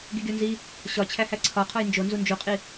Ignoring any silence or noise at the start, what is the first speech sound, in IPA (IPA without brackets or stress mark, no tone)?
ɡ